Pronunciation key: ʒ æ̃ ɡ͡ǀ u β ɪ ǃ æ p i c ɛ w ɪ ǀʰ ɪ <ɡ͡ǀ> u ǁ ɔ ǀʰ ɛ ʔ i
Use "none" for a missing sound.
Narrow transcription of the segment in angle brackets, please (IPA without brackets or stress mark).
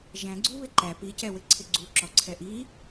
ɡ͡ǀ